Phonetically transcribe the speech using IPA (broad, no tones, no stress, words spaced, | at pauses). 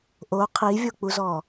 ʔo qʰivʲok͡puzɔ